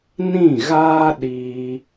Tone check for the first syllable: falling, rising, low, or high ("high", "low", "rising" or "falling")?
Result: falling